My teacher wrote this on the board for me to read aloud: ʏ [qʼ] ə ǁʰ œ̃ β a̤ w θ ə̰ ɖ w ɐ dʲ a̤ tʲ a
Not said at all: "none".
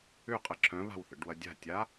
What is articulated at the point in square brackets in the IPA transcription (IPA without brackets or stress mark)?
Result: qʼ